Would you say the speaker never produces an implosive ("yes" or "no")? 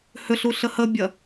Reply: yes